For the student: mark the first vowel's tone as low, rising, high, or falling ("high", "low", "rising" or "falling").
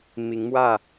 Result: rising